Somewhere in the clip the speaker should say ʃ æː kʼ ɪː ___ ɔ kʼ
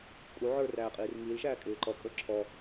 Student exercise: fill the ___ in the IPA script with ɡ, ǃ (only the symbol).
ǃ